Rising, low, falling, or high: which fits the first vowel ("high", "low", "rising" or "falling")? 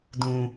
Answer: high